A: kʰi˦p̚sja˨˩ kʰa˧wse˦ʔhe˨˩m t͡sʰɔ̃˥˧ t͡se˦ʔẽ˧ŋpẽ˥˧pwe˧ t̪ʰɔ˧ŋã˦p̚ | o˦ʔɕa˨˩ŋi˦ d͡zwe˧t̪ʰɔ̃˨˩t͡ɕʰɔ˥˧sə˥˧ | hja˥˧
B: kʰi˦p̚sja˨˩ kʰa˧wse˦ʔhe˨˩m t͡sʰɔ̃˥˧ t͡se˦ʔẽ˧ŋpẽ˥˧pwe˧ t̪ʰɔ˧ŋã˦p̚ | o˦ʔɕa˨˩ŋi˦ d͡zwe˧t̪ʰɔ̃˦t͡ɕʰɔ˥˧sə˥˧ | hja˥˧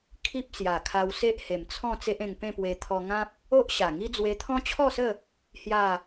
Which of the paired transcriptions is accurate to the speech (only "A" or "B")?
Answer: B